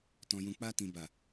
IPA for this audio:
t ɔ̃˨ j ũ˨ k͡p a˧ t ĩ˨ b a˨

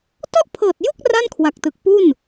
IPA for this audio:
t ɔ˥˩ ʔ pʰ ɤː˨˩ t̚ j u˥˩ k̚ r a˥˩ n kʰ w a˨˩ k̚ t ɯ˨˩ k̚ p u˥˩ n

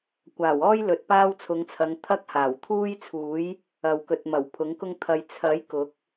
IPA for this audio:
kʷ aː˨˩ w ɔː˥ j l ɵ˨ t̚ p aː˥ w t͡sʰ ʊ˨˧ ŋ t͡sʰ ɐ˨˧ ŋ t̪ʰ ɐ˥ k̚ h aː˨˩ w t̪ʰ uː˥ j t͡sʰ uː˨˥ j | ɐ˨ w k ɵ˨ t̚ m ɐ˨˩ w pʰ ʊ˨˥ ŋ k ʊ˥ ŋ t̪ʰ ɐ˧ j t͡sʰ ɐ˨˥ j k ʊ˨˥ k̚

